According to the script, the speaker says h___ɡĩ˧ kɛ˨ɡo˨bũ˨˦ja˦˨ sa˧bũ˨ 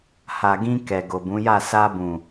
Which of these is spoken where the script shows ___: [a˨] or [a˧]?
a˨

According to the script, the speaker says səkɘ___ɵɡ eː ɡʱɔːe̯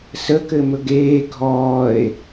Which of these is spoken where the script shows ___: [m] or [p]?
m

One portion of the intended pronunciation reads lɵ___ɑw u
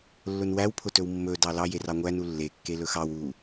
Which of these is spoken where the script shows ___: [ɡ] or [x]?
x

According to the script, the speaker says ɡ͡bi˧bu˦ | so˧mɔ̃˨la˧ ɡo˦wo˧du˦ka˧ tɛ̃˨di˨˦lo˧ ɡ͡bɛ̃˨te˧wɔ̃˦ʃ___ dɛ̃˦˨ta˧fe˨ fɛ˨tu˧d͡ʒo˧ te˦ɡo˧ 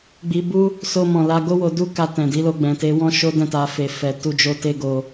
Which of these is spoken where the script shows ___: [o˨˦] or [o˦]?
o˦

